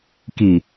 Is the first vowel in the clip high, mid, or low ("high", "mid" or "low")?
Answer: high